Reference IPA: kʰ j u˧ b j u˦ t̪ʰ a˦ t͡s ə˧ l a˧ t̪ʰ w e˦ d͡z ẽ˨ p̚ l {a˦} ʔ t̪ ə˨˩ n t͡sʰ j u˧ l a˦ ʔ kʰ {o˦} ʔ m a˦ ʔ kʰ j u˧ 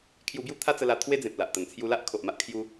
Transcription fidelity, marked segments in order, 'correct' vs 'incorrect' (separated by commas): incorrect, incorrect